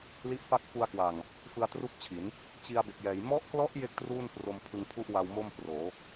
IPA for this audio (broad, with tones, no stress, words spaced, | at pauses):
li˦˥ʔfa˥˩k̚ fu˧a̯kwa˨˩ŋ | fɯ˧a̯tru˥˩k̚t͡ɕʰi˩˦n | t͡ɕi˧a̯be˨˩k̚jɛː˩˦j mɔ˦˥ʔklɔ˦˥ʔ je˥˩k̚truː˥˩npro˧m pʰɯ˧ŋpʰu˥˩ʔ wa˧wmo˥˩m proː˩˦